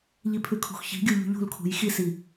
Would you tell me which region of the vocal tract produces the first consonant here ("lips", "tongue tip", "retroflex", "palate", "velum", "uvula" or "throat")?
palate